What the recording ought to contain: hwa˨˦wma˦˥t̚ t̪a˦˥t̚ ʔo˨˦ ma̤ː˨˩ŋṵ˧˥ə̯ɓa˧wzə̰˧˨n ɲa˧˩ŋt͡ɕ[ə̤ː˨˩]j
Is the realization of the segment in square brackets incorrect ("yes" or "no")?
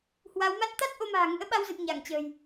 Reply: no